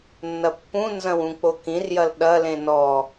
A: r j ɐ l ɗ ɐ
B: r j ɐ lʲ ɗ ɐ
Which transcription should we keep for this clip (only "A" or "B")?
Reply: A